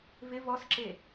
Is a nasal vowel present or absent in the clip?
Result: absent